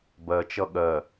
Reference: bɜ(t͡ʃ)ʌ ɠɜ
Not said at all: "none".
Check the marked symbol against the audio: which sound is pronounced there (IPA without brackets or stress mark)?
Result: t͡ʃ